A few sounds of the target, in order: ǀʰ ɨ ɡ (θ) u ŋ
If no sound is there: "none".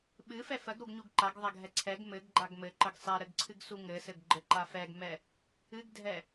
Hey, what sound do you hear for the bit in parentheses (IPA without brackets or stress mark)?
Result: s